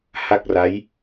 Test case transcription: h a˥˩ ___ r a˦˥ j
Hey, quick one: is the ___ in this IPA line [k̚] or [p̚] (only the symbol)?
k̚